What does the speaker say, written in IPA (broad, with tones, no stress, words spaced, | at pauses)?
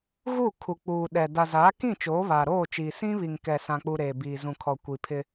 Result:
ɣu˦˨ kʰu˨k͡puː˨ ɗɛ˨ da˨zaː˨˦kĩ˦˨ t͡ʃoː˨˦βaː˨ɾoː˦˨t͡ʃiː˨ sĩ˦βi˨ŋkɛ˨ sã˨k͡pu˨ ɾeː˨biː˨zũ˨kʰɔ˨ kʷi˨pʰɪ˦